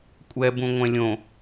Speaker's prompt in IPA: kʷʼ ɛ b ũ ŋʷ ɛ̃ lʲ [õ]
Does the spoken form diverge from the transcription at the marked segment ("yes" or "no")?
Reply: no